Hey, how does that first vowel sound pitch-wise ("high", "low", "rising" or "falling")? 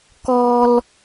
high